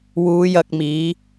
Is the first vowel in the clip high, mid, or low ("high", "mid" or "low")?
high